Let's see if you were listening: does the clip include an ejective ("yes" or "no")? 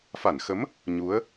no